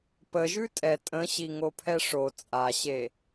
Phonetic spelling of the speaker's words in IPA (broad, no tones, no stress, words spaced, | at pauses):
pəʒʉ tʼɛ tʼə̃ɕiŋopʰɛ ʂo t͡sʼaɕe